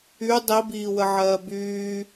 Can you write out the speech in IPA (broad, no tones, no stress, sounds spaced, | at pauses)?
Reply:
y dˤ i b iː w ə ʕ ɜː b yː